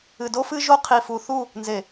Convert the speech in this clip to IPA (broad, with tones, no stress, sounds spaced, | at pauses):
ɨ˨ d o˦ f ɨ˦ ʒ o˦ qʰ i˨ f u˨ θ u˦˨ | n z e˨